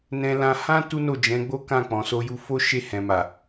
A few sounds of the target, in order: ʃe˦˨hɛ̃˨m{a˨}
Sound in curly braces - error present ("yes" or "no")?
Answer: no